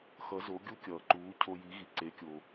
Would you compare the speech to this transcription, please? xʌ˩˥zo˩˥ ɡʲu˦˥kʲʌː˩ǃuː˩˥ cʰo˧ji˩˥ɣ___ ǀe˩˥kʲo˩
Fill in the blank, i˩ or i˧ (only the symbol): i˩